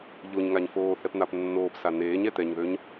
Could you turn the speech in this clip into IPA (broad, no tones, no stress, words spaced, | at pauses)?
ʎoɲŋaɲ foː θɛpn̪apnːoːpsa neːɲɛ t̪ɛɲðøɲ